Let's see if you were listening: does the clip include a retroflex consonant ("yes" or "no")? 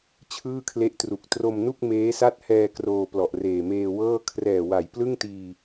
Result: no